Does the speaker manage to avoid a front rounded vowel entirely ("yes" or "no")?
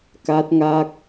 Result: yes